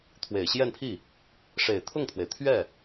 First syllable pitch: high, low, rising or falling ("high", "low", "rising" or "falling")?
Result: low